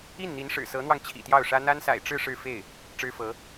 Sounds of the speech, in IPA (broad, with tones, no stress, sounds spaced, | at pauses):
i˥˩ n n̪ i˧˥ n ʂ ɻ̩˨˩ s ɤ˧˥ n̪ w ɑ˧ ŋ t͡ɕʰ ḭ˨˩ t̪ j ɑ˥˩ ʊ̯ ʂ ä˥ n̪ a˥ n s a̰˨˩ ɪ̯ ʈ͡ʂ ɻ̩˥˧ ʂ ɻ̩˥˧ f e˥˩ ɪ̯ | ʈ͡ʂ ɻ̩˥ f ɤ˧˥